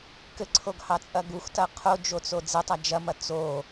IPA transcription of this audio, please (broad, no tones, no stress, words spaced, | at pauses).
kɘǀʰoɡhɑt͡sʼɐ ɡuxtɐ qʰod͡ʒot͡so d͡zetˤa d͡ʒɐmɐ t͡so